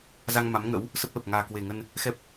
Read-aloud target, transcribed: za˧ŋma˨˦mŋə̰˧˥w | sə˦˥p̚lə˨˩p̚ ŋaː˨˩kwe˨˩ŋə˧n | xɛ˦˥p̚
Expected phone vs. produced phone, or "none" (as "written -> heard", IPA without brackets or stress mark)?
none